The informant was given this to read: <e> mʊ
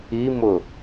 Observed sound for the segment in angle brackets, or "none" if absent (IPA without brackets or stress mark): i